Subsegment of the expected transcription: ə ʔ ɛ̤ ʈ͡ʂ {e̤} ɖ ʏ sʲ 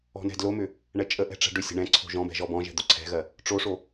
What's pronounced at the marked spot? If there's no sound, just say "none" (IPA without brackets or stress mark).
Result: ɛ̤